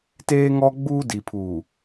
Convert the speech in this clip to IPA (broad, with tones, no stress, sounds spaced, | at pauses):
t eː˦ ŋ ɔ˦ ɡ͡b uː˦ d i˨ pʰ uː˨